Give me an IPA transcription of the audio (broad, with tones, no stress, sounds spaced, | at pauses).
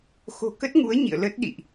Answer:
x o̤˨˩ k ə˦˥ t̚ ŋ u˨˦ ə̯ ɲ ḭ˧˨ ə̯ l ə˦˥ t̚ ɗ ḭ˧˨ ʔ